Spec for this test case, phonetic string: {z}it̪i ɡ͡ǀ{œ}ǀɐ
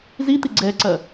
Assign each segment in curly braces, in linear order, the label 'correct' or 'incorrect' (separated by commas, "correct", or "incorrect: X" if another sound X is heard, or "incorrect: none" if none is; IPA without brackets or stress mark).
correct, incorrect: ɛ